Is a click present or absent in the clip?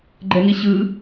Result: present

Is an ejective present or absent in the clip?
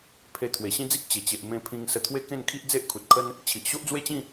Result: absent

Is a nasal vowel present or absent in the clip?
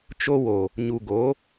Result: absent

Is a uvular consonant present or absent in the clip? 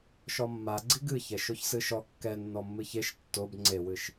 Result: absent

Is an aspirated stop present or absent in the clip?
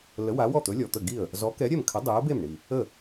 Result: present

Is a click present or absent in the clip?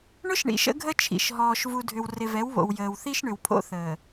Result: absent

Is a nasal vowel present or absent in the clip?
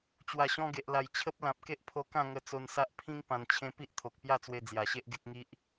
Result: present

